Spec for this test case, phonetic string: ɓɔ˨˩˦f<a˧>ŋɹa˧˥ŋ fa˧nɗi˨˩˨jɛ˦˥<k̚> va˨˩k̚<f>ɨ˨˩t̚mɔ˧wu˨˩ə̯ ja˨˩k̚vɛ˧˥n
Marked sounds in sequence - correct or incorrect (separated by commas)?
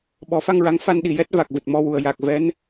correct, incorrect, incorrect